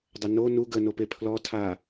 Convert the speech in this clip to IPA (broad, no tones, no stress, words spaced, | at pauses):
dˤəno nu ɡə nopepʰlɔ tʰa